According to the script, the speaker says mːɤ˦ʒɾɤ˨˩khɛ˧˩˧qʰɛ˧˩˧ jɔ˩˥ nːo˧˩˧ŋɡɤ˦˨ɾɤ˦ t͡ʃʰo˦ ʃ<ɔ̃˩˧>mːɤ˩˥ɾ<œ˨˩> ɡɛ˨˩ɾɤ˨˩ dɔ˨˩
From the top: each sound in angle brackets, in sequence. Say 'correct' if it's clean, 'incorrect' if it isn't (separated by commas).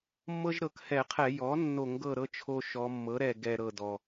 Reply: incorrect, incorrect